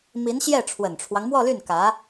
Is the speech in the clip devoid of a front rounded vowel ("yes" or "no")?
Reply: no